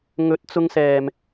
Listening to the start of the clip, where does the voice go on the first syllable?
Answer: rising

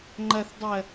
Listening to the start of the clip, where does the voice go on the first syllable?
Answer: low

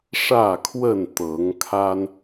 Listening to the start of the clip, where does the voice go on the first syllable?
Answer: falling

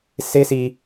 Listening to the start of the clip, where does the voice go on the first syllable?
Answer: high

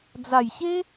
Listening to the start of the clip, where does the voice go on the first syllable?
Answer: low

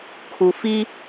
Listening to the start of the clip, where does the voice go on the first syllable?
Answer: low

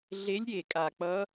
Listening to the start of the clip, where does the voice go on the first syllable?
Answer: rising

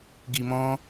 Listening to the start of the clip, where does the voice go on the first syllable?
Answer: low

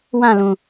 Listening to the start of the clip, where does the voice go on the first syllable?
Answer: falling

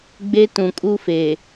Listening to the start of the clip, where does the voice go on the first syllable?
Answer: high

